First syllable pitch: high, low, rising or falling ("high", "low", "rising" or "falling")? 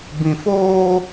low